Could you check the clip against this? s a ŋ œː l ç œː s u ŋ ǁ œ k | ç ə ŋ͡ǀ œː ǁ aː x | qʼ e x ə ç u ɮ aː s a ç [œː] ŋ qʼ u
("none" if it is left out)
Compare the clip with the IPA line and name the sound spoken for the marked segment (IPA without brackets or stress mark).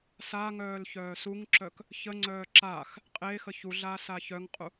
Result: œ